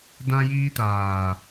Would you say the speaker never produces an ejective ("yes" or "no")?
yes